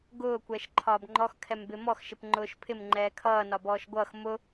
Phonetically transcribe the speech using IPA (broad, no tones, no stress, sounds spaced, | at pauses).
ɡ ʊː kʷ ɛː ʃ ǃʰ ɒː b ŋ͡ǃ ɔ x kʰ ɛ m b ɪ m ɔ x ʃ ɪ p ŋ͡ǃ ʊː ʃ pʰ ɪ m ŋ͡ǃ ɛː kʰ ʌː n ɒ b ɔː ʃ ɡʷ ʌː x m ʊ